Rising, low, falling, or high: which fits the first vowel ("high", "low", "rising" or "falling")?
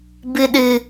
low